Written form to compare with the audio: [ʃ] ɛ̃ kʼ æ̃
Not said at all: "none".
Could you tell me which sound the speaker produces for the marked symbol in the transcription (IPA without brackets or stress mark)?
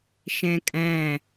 ʃ